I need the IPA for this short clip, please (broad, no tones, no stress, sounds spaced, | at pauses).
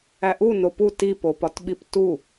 æ ʔ u n o p u t i p o p ɒ t ɓ i p t u